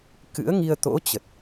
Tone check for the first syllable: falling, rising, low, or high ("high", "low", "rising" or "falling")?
rising